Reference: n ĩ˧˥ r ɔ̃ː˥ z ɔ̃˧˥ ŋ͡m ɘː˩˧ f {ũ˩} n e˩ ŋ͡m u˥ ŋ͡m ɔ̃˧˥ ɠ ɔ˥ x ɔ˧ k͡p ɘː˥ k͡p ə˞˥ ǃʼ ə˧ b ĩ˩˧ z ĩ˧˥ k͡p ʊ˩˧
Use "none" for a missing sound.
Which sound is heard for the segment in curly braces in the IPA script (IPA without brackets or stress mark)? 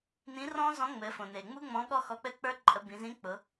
õ˩